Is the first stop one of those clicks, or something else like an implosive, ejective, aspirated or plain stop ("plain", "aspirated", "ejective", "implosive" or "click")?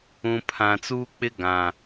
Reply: aspirated